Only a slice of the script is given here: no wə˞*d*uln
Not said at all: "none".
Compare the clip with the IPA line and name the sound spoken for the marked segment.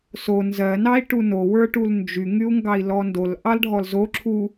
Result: ʈ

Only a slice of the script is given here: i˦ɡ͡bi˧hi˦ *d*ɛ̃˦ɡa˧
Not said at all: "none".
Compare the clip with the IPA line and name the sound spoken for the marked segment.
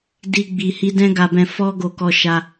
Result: d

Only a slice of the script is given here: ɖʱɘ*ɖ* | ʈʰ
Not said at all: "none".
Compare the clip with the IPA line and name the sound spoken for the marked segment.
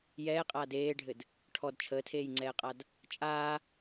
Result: d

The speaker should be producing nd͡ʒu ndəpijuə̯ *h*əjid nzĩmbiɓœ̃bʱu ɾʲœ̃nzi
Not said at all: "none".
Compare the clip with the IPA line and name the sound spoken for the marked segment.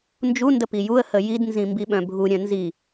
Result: h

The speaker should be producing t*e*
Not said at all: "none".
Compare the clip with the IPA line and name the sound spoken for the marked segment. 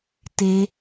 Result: e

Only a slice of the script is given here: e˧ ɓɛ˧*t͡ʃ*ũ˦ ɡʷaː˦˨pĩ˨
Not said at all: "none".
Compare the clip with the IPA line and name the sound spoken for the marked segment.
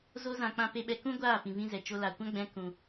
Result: k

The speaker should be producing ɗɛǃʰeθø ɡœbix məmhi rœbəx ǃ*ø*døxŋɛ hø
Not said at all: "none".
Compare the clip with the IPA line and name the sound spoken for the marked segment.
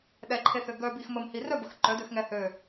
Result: œ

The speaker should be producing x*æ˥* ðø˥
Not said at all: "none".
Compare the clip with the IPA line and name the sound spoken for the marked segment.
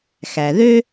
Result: æ˨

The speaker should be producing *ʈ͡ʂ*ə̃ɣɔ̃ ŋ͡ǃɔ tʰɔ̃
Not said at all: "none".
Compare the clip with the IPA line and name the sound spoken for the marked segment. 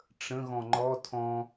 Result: ʈ͡ʂ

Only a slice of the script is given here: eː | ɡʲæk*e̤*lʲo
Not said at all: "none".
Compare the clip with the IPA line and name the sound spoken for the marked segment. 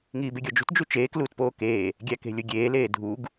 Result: e̤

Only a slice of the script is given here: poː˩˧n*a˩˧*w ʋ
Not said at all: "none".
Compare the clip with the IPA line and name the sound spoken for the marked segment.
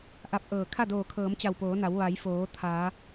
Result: a˩˧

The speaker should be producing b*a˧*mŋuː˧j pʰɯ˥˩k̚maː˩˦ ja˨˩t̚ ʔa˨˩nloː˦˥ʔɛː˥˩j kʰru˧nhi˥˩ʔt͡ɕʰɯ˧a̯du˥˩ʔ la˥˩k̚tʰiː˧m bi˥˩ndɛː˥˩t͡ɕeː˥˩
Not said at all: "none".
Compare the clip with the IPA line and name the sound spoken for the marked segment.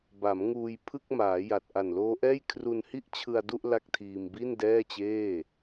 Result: a˩˦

